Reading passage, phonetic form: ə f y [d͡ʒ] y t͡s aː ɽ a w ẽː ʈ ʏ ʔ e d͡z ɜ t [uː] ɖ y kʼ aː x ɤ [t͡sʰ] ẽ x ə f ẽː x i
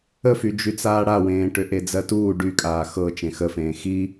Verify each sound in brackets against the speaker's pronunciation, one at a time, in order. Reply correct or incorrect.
correct, correct, incorrect: t͡ʃ

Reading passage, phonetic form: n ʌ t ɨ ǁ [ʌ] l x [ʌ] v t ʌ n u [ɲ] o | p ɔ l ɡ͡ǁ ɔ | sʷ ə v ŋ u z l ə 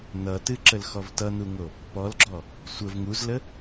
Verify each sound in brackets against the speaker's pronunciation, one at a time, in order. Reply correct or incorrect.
incorrect: ə, incorrect: ɔ, incorrect: ŋ

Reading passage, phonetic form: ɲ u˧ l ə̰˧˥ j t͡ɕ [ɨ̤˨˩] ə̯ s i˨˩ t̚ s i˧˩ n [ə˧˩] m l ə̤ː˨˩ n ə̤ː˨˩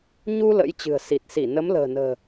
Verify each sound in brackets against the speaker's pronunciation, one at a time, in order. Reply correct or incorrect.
correct, incorrect: ə˨˦

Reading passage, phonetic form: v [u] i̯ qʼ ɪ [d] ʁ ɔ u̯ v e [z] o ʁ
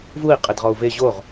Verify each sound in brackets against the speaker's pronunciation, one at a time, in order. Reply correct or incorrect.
correct, correct, incorrect: ʑ

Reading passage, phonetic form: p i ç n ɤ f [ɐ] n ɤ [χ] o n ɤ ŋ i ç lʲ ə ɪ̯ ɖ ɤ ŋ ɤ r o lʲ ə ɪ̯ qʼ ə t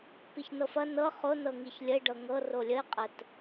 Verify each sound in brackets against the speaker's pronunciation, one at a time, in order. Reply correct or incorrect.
correct, correct

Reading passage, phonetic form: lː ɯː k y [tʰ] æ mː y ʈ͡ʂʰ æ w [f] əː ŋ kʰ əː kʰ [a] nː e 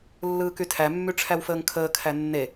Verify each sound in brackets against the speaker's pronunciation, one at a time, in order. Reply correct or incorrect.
correct, correct, incorrect: æ

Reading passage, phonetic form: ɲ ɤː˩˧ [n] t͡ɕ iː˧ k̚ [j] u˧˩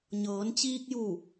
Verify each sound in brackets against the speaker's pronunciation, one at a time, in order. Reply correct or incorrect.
correct, correct

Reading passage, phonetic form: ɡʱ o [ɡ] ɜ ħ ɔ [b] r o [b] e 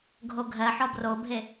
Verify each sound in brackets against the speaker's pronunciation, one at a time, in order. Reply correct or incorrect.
incorrect: ɡʱ, correct, incorrect: bʱ

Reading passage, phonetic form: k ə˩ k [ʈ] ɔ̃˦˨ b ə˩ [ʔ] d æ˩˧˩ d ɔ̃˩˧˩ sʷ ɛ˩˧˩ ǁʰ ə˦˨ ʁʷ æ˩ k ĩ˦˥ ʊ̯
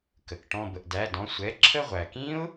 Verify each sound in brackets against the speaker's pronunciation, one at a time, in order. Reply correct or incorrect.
correct, correct

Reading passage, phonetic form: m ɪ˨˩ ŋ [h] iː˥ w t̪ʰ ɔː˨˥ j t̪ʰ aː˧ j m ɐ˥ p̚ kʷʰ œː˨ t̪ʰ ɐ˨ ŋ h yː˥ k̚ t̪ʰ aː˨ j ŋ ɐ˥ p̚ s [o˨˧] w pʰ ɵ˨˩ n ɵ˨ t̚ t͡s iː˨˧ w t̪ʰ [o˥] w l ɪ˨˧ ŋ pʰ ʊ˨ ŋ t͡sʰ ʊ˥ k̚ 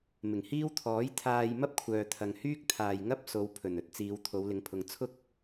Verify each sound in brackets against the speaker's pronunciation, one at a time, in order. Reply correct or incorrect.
correct, correct, incorrect: o˨˧

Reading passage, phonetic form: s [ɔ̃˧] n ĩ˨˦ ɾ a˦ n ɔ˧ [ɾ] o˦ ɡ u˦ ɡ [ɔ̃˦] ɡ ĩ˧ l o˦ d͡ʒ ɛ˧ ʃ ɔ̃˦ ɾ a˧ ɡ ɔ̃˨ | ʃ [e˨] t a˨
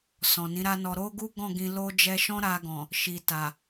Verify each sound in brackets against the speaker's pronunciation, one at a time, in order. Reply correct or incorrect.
incorrect: ɔ̃˨, correct, incorrect: ɔ̃˦˨, incorrect: i˨

